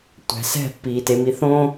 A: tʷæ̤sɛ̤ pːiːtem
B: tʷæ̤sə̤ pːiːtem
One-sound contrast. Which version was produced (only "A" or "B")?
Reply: A